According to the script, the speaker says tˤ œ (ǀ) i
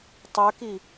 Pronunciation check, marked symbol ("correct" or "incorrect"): incorrect